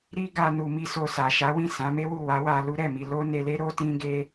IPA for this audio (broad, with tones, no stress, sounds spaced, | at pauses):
ɾ i˦ ɡ a˧ n u˧ m i˦ s o˧ s a˨ ʃ a˨˦ w ĩ˦˨ s ã˨˦ m e˦ w u˦˨ w a˨˦ w a˧ l u˦ ɾ ɛ˦˨ m i˧ l o˦ n e˧ l e˦ ɾ o˦ t ĩ˦ ɡ e˦